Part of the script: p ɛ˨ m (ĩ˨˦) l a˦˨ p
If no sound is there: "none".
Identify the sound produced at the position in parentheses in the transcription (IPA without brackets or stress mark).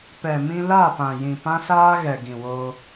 ĩ˧